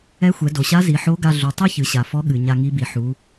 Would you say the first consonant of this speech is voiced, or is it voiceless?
voiceless